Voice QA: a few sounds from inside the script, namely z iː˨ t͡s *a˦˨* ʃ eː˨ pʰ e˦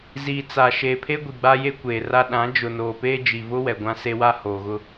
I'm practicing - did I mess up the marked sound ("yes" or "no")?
yes